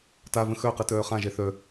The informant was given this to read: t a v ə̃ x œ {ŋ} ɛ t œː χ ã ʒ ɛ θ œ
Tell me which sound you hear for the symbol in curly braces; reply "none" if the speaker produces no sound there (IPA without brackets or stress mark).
q